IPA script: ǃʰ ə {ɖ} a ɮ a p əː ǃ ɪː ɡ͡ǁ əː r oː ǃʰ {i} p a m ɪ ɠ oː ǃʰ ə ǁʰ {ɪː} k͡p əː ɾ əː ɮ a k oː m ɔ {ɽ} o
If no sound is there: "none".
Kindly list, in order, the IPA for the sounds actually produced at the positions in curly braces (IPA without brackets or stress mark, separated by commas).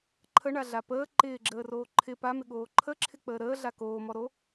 ɳ, ɪ, ɪ, ɾ